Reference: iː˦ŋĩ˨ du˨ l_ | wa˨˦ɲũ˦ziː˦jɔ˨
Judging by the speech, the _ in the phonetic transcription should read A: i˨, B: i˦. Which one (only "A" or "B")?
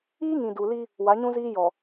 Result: B